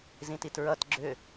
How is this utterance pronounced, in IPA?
z ĩ t i t ɹ ʌ t ɡ͡ǁ ʏ

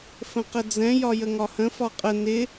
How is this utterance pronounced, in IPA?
f ə̃ q ə d͡z ɛ̃ j ɒ j ə ŋ ɒ h ə̃ f ɒ qʼ ə n ɪ

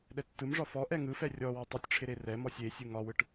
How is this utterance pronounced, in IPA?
ɗ ɛ tː ɯ m ʐ ɒ f ɔ ʔ ɛ ŋ ɯ f ɛ rʲ ɔ w ɯ tˤ ɨ tʲ ʈ͡ʂʰ ɪ ɾ e r ɛ m ɔ sʲ e sʲ ɯ ŋ ɒ w ɯ ʈ

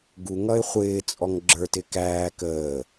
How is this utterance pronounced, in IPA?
ɡ u ŋ ʌ ɪ̯ χʷ ɪː t͡sʼ ɔ ŋ ɡ͡ǁ ə˞ t ɪ k æː k əː

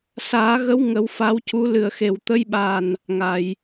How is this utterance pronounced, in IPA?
s aː˨˩˦ ɣ ə˧˥ w ŋ ə˨˩˦ w f a˧˥ w c u˧˥ l ɨ˨˩ ə̯ x e˨˩ w t̪ ə˧˥ j ɓ a˨˩ n | ŋ a˨˩˨ j

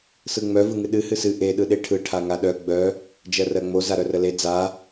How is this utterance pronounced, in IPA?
s ɯ ŋ͡m œ v ɯ ŋ ɨ ɗ ɨ h ɨ s ɨ ʔ e ɗ ɯ ɗ e ʈʰ ɯ ʈʰ a ŋ a ɗ œ ɡ͡b œ | d͡ʒ ɜ r ɜ ŋ͡m o z a ɾ œ r ə l e d͡z a

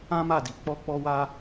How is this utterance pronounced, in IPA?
ã˦ m a˦˨ d i˨˦ k͡p ɔ˦ k͡p ɔ˦ w a˦

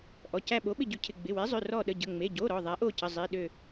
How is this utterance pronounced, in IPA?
ʔ ɔ˩˧˩ c æ˦˨ ɓ o˨˥ ɓ ɪ˦˨ ɟ ʉ˨˥ cʰ ɪ˩˧˩ ɡ͡b ɪ˩˧˩ w e˨˥ zˤ ø˩˧˩ r ɔ˦˨ ɗ ə˩˧˩ ɟ ə˩˧˩ ŋ͡m e˩˧˩ ɟ o˩˧˩ ɾ ɔ˩˧˩ ðˤ æ˨˥ ʔ o˦˨ c ə˩˧˩ zˤ i˩˧˩ ɗ ø˦˨

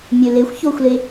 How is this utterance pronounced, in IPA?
mʲ ø l e xʷ ç o xʷ l e

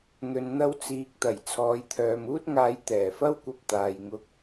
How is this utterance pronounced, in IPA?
n̪ ɵ˨ n n̪ ɐ˧ w t͡s iː˨ k̚ t̪ ɐ˨˩ j t͡sʰ ɔː˨˧ j t̪ʰ œː˨ m uː˥ t̚ ŋ aː˧ j t̪ ɛː˨˩ f ɐ˥ w kʷ ɐ˧ p̚ t̪ aː˨ j ŋ ʊ˧ k̚

